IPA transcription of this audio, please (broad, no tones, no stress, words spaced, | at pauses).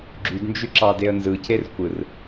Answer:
ɡ͡ǁydnd͡ʒy ǁɑdeə̯nzɯcer kʷɯr